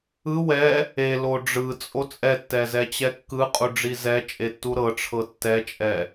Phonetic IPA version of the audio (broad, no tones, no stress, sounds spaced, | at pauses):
ɯ w ɛ | e l o ɖ͡ʐ ɯ t͡sʼ o t͡sʼ ɛ tː ɛ z ɛ t͡ɕ ɛ kː ɯ qʼ u ɖ͡ʐ i z ɛ t͡ʃʼ e tː u ɾ ɤ ʈ͡ʂʰ ɤ tː ɛ t͡ʃʼ ɛ